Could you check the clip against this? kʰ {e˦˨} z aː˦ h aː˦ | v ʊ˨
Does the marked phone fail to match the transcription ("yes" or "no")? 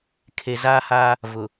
yes